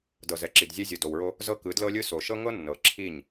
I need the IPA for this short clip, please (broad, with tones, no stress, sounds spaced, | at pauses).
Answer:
d ɤ˨ z ɛ˨ ǁ i˨ d zʲ ɛ˦ zʲ o˨ d o˨ w ɹ o˦ | z ɤ˦ k ɯ˨˦ d l ɤ˦ lʲ ɯ˦ s o˨ ʃ ɤ˦ ŋ ɤ˦ nː ɤ˨ ǁʰ i˦˨ ɲ